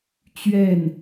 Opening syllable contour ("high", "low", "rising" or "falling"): falling